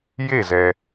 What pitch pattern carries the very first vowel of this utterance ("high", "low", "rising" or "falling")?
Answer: falling